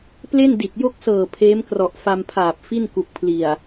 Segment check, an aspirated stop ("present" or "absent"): present